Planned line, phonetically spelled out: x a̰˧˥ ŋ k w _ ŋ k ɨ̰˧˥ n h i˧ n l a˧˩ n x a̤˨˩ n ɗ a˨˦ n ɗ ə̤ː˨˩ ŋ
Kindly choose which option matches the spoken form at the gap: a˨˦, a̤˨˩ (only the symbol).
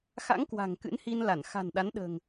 a̤˨˩